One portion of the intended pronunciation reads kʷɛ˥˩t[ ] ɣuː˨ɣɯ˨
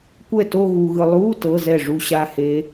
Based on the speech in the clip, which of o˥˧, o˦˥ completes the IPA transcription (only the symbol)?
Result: o˥˧